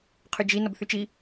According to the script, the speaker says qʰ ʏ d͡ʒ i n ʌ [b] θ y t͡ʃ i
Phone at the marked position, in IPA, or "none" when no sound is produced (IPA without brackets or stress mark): b